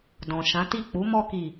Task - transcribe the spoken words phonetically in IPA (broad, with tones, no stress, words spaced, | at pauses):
dɔ̃˨ʃã˨˦ti˦˨ k͡pu˨˦mɔ˧ki˨